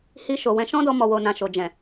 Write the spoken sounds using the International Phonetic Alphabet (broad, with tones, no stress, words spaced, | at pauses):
hi˧ʃo˨wɛ̃˧ ʃɔ̃˦dɔ˧ mɔ˨wo˨nã˨ ʃo˨ d͡ʒɛ̃˨